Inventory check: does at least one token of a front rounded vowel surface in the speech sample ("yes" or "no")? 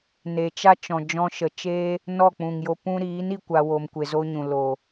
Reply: no